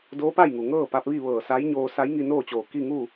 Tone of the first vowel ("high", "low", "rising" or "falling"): rising